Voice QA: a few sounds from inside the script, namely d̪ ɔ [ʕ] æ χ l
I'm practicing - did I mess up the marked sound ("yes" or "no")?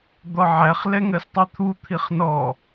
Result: no